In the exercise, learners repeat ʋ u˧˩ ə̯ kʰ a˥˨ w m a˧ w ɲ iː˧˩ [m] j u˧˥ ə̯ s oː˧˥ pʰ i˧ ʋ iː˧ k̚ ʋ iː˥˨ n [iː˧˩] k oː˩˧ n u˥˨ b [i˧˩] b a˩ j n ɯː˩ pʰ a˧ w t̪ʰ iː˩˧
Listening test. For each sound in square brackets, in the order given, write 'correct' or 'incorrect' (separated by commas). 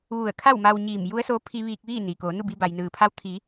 correct, incorrect, incorrect